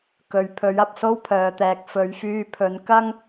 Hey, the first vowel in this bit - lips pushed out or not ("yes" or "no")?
yes